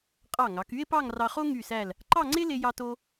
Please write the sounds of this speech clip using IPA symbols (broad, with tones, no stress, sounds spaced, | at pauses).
qʼ ɑ˧˩ ŋ ɑ˩˧ k y˥ e̯ p ɑ˥˧ ŋ r ɑ˧ χ o˥ ŋ y˧˩ s æ˧˩ l | ǃ ɑ˥˧ ŋ͡ǀ e˥ l e˧ j ɑ˧ t o˧